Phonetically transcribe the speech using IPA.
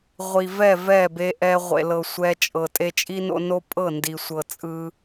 ʁʷ i˨ v ɛ˦˨ v ɛ˦˨ b e˧ ʔ ɛ˧ ʁʷ ḛ˨ l ɤ˨ sʷ ɛ˧ t͡ʃʼ ɤ˨ tʼ e˧ t͡ʃʼ i˦ n o̰˧ n o˦ pʼ ɤ˦˨ n d i˨ sʷ ɤ˨ t͡sʼ ɯ˧

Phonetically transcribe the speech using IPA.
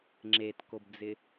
ŋ͡ǁ e t k o b d͡z ɪ

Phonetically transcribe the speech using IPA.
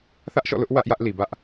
θ ä˦ ʔ ʃ ɔ̰˦˨ l ʊ˦ ʔ w ä˦ ʔ j ä˦ ʔ l i˨ b ä˦ ʔ

